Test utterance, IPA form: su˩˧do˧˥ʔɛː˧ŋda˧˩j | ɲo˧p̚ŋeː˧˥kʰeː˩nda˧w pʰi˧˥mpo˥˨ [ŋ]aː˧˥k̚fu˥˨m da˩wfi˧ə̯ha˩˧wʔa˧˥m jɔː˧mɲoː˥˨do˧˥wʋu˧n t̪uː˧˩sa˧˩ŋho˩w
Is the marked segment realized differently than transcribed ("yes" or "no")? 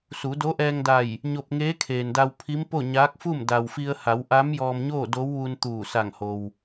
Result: yes